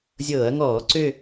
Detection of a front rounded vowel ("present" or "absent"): present